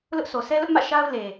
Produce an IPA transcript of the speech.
l ʊ˦ ʔ sʰ o˨ s ɛ˦ l ʊ˦ ʔ m ä̰˦˨ ʃ a˦ ʊ̯ l e˨

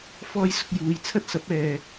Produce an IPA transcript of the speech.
f ɔː˥ j s ʊ˧ k̚ j uː˨˧ j t͡sʰ ɐ˥ t̚ s ɐ˨˥ p̚ ɛː˨

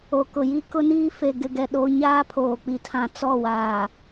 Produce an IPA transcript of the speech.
o˨ k ʊ˨ j i˦ k ʊ˦ n iː˦ f e˨ ɡ ɪ˨ ɡ ɛ˨ ɗ o˦ ɲ aː˦ pʰ oː˨ k͡p i˨ tʰ ã˨ t͡s ɔ˦˨ w aː˨

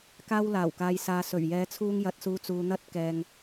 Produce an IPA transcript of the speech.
k aː˧ w l aː˨˩ w k aː˨ j s aː˨ s ɵ˨˩ ɥ j ɛː˨˧ t͡sʰ uː˧ ŋ j ɐ˨ t̚ s uː˨˧ t͡s uː˨ n̪ ɐ˧ t̚ k ɛː˨ ŋ

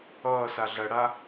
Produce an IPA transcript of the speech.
ʌː s a ɮ ɐ ɽ a

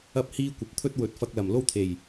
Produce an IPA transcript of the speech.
ɐ˥ p̚ h iː˥ kʷ ɐ˨ p̚ t̪ʰ ɵ˥ t̚ w ɵ˨˥ t̚ f ɐ˧ k̚ l ɐ˨˩ m l o˥ w t̪ʰ e˨˩ j

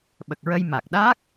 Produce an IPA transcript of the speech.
ɓ ə˨˩ k̚ ɹ ə˧ j m a˨˩ k̚ ɗ aː˦˥ k̚

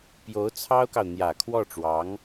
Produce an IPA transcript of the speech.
p j o˧˥ ʊ̯ t͡sʰ ɑ˥ ʊ̯ k ɑ˨ ʊ̯ n̪ j ä˨˩ kʰ w ɔ˥˩ ʈ͡ʂ w ɑ˧˥ ŋ

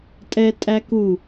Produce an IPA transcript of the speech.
tʼ ɛ tʼ æ k u

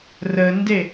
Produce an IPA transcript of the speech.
r ə n d e

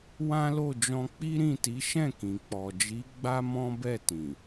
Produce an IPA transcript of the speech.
w ã˦ l o˦˨ d͡ʒ ɔ̃˧ k͡p i˦ ɾ ĩ˦˨ t i˨˦ ʃ ɛ̃˦˨ k ĩ˨ k͡p ɔ˨ d͡ʒ i˨˦ ɡ͡b a˦ m ɔ̃˦ b ɛ˦˨ t ĩ˨

